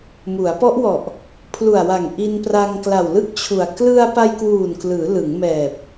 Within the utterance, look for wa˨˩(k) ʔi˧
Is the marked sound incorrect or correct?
incorrect